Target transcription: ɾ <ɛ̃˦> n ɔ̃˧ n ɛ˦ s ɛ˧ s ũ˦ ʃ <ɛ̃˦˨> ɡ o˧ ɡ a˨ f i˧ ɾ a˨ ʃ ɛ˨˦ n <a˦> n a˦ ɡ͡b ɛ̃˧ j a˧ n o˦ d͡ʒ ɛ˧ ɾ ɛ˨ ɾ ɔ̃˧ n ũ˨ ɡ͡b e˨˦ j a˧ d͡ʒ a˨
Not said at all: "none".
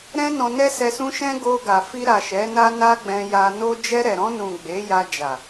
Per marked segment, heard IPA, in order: ɛ̃˦, ɛ̃˦, a˦

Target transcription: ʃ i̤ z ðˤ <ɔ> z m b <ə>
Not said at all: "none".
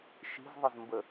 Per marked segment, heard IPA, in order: ə, ə

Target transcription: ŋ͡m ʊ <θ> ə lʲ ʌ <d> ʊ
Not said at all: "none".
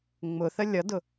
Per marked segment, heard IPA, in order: θ, d

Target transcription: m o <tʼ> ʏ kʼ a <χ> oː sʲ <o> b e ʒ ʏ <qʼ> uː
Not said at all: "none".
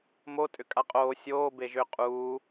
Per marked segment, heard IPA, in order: tʼ, qʼ, oː, qʼ

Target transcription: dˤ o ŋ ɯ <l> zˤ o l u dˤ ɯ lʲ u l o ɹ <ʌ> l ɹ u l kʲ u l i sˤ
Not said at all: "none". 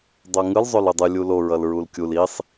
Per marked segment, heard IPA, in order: l, ʌ

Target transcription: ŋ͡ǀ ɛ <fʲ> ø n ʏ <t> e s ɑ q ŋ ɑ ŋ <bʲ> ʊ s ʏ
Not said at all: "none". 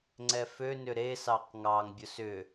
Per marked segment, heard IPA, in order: f, ɾ, bʲ

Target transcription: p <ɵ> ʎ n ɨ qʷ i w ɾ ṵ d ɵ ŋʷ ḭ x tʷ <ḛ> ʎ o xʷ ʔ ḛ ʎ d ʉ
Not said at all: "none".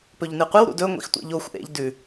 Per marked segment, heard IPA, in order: ɵ, ḭ

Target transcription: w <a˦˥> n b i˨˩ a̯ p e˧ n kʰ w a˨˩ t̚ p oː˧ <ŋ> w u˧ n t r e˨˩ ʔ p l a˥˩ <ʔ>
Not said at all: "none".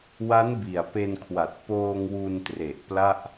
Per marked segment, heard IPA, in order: a˦˥, ŋ, ʔ

